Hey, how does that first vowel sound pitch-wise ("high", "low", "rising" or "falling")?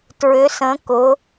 rising